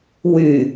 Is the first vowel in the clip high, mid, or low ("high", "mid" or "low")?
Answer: high